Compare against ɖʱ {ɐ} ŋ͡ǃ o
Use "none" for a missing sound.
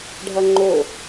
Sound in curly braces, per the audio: ɐ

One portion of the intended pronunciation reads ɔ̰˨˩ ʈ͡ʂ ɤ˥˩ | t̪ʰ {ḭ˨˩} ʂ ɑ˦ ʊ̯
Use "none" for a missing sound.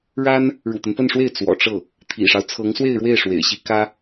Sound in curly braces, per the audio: ḭ˨˩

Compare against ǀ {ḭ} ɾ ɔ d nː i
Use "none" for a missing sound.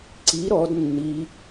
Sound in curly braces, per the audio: i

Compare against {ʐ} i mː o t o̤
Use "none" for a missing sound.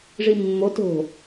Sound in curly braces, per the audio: ʐ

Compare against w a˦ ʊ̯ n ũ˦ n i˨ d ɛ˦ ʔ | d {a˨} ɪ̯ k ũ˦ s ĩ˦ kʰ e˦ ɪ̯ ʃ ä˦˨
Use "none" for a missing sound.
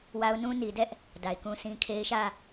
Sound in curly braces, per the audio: a˨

